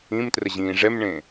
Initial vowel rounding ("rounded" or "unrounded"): unrounded